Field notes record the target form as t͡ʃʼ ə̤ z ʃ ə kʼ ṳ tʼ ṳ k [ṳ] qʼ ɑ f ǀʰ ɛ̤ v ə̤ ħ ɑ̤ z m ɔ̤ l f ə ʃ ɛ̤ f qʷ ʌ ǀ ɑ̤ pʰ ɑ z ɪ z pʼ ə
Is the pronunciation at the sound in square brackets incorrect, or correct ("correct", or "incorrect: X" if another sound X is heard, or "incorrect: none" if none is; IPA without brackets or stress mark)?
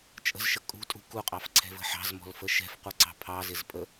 incorrect: u